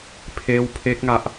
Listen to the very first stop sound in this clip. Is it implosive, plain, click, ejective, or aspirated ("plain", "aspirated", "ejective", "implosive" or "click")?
aspirated